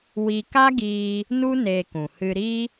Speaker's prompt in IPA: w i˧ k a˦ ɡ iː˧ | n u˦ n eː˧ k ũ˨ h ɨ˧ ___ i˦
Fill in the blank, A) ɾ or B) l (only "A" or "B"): A